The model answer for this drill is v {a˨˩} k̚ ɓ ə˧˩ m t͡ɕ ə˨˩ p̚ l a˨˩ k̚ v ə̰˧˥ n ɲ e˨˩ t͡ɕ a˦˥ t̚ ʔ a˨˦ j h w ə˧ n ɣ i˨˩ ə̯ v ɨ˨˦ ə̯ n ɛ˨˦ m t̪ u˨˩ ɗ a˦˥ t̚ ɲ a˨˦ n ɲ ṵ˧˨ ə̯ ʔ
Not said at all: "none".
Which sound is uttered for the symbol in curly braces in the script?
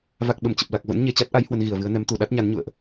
a˨˩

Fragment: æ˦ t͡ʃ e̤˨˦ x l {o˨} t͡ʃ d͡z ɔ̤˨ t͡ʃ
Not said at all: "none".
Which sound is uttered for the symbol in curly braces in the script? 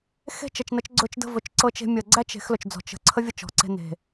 ɵ˨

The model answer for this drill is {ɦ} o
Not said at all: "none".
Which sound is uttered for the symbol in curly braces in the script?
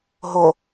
ɦ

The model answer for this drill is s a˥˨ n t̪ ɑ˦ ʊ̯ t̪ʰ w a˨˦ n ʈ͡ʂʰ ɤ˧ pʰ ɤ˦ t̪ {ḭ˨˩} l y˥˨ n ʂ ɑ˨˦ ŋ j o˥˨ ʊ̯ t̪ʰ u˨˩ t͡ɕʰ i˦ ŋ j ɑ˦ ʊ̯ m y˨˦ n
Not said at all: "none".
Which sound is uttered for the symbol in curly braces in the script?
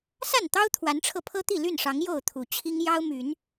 i˥˨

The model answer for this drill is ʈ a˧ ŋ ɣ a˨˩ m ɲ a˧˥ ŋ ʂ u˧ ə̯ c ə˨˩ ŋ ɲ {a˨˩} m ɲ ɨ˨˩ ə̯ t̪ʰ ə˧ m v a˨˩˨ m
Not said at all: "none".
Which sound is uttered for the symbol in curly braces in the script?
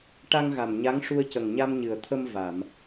a˧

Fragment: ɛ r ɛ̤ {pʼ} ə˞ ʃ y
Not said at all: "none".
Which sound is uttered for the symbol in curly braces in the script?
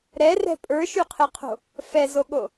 pʼ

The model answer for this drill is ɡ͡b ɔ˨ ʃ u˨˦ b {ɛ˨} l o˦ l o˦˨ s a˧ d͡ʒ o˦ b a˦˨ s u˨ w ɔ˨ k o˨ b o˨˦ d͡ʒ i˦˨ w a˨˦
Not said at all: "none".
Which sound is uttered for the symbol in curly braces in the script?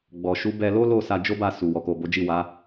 ɛ˧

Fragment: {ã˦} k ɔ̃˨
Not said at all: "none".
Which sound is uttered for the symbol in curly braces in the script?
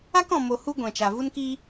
a˦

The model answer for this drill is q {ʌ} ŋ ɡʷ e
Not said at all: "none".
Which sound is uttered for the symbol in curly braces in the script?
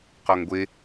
ɔ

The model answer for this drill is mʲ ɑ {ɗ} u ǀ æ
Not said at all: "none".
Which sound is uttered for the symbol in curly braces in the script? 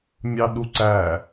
ɗ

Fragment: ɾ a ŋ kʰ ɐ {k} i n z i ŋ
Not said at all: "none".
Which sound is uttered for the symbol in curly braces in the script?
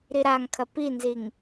p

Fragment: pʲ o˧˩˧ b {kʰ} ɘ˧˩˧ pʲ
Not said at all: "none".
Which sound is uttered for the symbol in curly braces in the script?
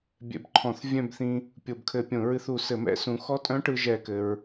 kʰ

